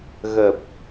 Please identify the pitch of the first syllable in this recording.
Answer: low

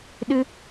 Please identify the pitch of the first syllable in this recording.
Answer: high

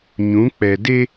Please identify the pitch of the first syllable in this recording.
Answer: rising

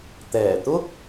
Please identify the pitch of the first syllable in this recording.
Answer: low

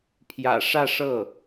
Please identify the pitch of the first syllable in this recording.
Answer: low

